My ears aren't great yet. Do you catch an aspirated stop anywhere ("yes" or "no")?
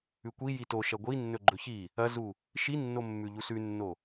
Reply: no